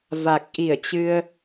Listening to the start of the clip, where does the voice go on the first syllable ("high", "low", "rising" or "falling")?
low